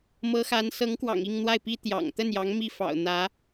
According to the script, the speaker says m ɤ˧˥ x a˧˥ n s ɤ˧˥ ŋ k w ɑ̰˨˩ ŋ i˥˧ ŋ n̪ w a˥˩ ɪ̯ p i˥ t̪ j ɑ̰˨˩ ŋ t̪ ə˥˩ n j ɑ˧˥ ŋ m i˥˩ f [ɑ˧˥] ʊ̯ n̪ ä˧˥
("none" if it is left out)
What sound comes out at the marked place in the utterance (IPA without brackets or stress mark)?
ɑ̰˨˩